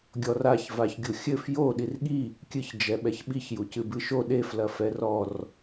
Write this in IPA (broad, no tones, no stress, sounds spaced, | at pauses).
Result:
ɡʲ ɔ r a ç v a ç ɡʲ u xʲ ɘ f j o ɗ i r ɠ i | kʲ ɨ ç d͡ʒ ɛ ɓ ɛ ç ɓ i ç j u c ɨ b ɨ ʃ o ɗ e f l ɐ f ɛ r ɔ r